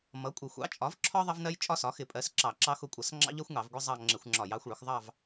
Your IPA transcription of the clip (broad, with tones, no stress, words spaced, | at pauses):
mʌ˩˥kʷʼɪ˧˩˧ xʷɑ̰˩˥t͡ʃʼɒ˩˥vǁʰɒ˦ ðˤʌ˦vnɜ˦j t͡ʃʼɒ˦sɒ˩˥xɪ˧˩˧pʼɜ˩˥s ǁɑ˧˩˧ǁɑ˦xʊ˦˨kʷʼʌ˧˩˧s ŋ͡ǁɑ̰˦ʎɜ˦xʷŋɑ˧˩˧v ɡʷɪ˦zˤɑ˦˨ ŋ͡ǁɪ˧˩˧xʷŋ͡ǁɒ˧˩˧j ɑ˩˥xʷɭʊ˩˥x ðˤɑ˦˨v